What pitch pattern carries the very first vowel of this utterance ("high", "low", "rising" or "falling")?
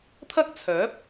high